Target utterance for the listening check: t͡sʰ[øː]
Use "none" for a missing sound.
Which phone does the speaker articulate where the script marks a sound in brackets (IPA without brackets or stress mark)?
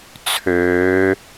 øː